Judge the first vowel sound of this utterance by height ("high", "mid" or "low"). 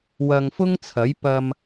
low